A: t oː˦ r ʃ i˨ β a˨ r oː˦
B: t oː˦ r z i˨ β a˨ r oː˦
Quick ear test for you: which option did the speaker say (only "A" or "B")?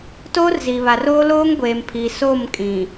B